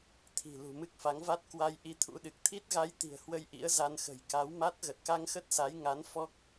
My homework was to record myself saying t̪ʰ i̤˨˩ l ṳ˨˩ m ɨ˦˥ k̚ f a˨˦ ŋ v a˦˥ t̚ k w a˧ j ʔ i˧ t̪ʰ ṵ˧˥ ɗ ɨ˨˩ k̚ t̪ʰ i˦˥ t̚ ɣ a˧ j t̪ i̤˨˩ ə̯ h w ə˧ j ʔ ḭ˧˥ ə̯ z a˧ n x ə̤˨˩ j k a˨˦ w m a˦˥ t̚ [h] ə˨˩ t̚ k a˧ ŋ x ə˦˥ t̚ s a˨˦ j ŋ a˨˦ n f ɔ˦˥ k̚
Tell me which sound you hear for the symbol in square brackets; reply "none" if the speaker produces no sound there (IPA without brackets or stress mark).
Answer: ɣ